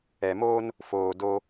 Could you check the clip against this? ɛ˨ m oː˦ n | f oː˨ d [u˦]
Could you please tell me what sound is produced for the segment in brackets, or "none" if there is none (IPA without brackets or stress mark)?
o˦